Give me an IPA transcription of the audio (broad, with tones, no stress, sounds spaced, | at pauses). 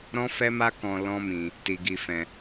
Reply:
ɾ ɔ̃˦ f ɛ˦ m a˦ k ɔ̃˧ l ɔ̃˦ m ĩ˧ | t i˧ ɡ i˧ f ɛ̃˧